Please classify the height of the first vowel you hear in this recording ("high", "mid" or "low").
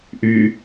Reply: high